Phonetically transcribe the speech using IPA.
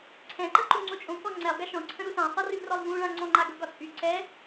ǀʰ ɛ̃ ǃ ə ǃ u ŋ͡ǀ o t͡ʃʼ õ k ɔ ŋ͡ǀ ɛ lˠ ɡ a ʃ ɔ̃ ǀʰ ə̃ ɾ u s ã sˤ ɤ r y v r ɔ lˠ v ũ ɭ ã ŋ͡ǀ ɔ̃ ŋ͡ǃ a ɡ ɤ ɡ ɒ t͡sʼ y ǀ ɛ

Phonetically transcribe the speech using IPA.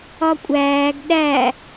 ɒ kʷʼ æː ɡ ɗ æ

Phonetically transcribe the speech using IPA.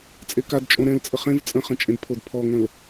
t͡sʼ e k a d t͡ʃʼ õ ɾ ɛ̃ l t͡sʼ ə χ ẽ v t͡sʼ ə̃ χ ə̃ t͡ʃʼ ẽ d pʰ o d pʰ ɔ ŋ ə̃ l

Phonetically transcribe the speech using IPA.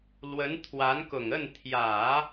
l w ə˧˥ n t̪ʰ w a˧˥ n k ʊ˨˩ ŋ ə˥˩ n t̪ʰ j ä˨˩˦

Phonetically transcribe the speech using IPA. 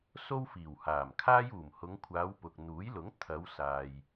s o˥ w f iː˨˩ w h aː˨˩ m kʰ aː˥ j uː˨˩ m h ʊ˨˧ ŋ kʷʰ aː˨˧ w p ʊ˨ k̚ n̪ uː˨˥ j l ʊ˨˥ ŋ t̪ʰ ɐ˨˧ w s aː˨ j

